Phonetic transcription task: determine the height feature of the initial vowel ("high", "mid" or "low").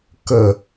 mid